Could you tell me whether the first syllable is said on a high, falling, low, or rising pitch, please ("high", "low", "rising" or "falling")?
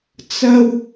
high